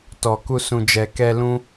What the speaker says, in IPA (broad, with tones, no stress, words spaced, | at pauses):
tɔ˨ku˧ sũ˨d͡ʒɛ˨ kɛ˧lũ˦